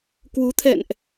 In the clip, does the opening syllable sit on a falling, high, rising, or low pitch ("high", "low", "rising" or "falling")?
rising